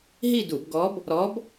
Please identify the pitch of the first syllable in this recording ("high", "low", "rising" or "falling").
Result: falling